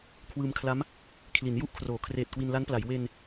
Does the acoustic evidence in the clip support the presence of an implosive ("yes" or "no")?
no